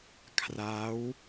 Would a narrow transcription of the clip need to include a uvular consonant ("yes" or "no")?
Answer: no